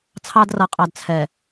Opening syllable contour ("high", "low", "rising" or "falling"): high